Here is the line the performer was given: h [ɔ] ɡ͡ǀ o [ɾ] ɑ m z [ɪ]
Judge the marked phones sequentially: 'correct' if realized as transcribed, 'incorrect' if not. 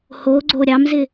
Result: incorrect, incorrect, correct

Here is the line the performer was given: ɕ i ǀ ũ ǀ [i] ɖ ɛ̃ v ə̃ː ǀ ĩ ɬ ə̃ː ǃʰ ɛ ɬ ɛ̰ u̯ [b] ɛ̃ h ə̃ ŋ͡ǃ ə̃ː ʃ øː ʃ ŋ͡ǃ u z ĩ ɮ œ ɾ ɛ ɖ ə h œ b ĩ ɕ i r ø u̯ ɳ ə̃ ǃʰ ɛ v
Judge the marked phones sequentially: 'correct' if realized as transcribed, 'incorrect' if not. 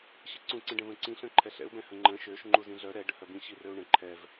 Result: incorrect, correct

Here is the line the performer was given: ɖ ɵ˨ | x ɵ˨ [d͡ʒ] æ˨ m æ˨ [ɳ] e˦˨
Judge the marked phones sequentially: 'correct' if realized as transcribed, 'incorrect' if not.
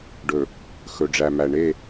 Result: incorrect, correct

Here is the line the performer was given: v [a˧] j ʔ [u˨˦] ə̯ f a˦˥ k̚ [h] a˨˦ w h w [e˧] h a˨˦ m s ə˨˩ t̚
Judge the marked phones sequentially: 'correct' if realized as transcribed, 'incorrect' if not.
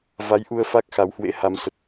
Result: incorrect, incorrect, incorrect, incorrect

